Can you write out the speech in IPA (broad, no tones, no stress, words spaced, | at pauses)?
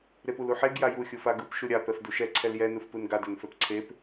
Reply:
ɾepuluħeɡ jaju xʲufaɡɯp ʃuɾʲa pɛfduʃɛ ǀʰɛljɛ nɯfpɯnɡa dɛnfɛpǀʰep